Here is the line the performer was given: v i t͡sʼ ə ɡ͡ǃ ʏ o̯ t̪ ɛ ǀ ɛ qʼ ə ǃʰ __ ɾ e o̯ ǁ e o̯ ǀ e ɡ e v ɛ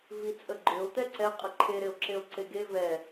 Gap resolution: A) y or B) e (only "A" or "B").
B